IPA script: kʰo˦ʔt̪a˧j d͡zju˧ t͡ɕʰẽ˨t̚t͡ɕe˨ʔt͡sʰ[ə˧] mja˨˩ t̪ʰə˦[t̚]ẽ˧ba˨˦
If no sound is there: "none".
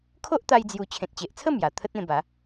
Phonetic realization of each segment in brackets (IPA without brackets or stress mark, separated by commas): ə˥˧, t̚